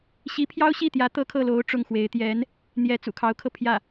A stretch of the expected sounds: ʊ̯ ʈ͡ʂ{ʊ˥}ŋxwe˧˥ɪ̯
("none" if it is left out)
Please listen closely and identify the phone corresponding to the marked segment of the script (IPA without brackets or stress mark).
ʊ˥˩